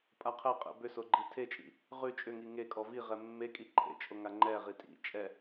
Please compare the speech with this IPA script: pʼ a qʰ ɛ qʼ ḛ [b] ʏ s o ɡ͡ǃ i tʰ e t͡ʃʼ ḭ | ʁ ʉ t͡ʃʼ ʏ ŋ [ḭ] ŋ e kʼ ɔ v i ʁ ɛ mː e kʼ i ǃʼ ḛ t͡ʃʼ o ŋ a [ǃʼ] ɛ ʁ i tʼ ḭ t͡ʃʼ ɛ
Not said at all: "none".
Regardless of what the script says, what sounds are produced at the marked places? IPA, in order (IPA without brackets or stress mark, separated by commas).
b, i, ŋ͡ǃ